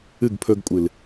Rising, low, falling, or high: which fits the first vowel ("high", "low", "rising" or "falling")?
falling